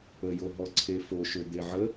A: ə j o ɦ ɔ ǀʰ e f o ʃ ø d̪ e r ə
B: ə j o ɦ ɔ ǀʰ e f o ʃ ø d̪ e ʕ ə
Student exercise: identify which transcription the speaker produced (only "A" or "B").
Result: B